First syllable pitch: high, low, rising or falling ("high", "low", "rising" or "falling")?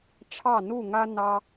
falling